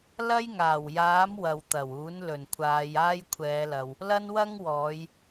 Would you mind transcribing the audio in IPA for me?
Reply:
l ɐ˥ j ŋ aː˨˩ w j aː˨˥ m w ɐ˨ w t̪ ɐ˨˩ w uː˨˥ n l ɵ˨˩ n kʷʰ aː˨˧ j aː˥ j kʷʰ ɛː˨˧ l ɐ˨ w | l ɐ˥ n w ɐ˥ ŋ w ɔː˨˧ j

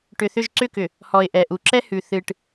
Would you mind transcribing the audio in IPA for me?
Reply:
ʈ ʏ˨ θ ʏ˦˨ ʒ ǀ ʏ˦˨ k ʏ˨ | h ɔ˨ ɪ̯ ʔ ɛ˨ ʔ u˨ ǁ ɛ˦ h ʉ˨ θ ɨ˨ ʈ

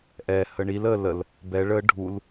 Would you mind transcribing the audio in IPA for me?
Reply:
ʔ ɛ h ə ɳ i l ə l ə l | b ɛ ɭ ə ɖʱ u l

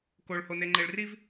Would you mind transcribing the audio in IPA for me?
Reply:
k o ɭ h o n e ŋ͡ǃ e ɭ r i v

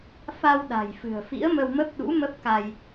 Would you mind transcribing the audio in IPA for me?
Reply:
f a˧ w ɗ a̤˨˩ j f ɨ̤˨˩ ə̯ f ḭ˧˥ ə̯ m ə˧ w m ə˦˥ p̚ ɗ ṵ˧˥ m ə˦˥ p̚ k a˧ j

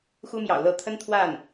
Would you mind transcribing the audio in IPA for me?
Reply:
x u˥ m j ɑ̰˨˩ ʊ̯ l ɤ˥˩ t̪ʰ ə˥ n t̪ʰ w a˥˩ n

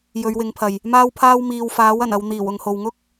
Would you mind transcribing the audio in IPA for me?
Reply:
j ɵ˨˧ ɥ w ɪ˨˥ ŋ pʰ ɐ˨ j | m aː˥ w pʰ aː˥ w m iː˨ w f aː˨˥ w ɐ˨˩ n ɐ˧ w n̪ iː˨˩ w ʊ˨ ŋ h o˨ w ŋ ʊ˥ k̚

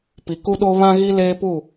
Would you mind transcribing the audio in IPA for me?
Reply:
p i˨ k u˦ ɗ o˦ β ã˦ ɣ i˦ l eː˦ p u˦˨

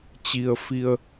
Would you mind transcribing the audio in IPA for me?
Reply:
t͡ɕ i˩ ə̯ f i˩ ə̯

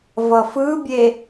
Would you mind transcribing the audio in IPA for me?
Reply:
v ʌ f ɯ bʲ e

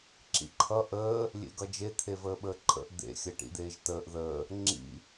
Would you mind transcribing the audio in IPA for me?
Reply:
ǁ ḭ ǃʰ ʌ ʔ əː | lʲ ḛ ɡ ʌ d͡ʒ e t̪ʰ e v əː ɓ əː ǃʼ ə̰ ʔ d̪ ḛ xʲ ə ʈ ḭ d̪ eː ʒ t əː ʔ ð əː | ŋ͡ǁ ḭ

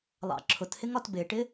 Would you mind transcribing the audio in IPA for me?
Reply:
lˠ ɑ̰ ǁʰ ʊ t h ɪ ŋ ɒ t b ɪ ʈ ɪ

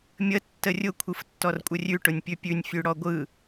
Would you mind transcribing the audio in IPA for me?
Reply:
mʲ ə tː ə rʲ ʊ kʷʰ ɯ f tː ɔ r kʷʼ ə rʲ ʉ ʈ ʊ nʲ pʲ ʉ pʲ ʉ nʲ fʲ ʉ ɽ ɔ ɡʷ ɯ

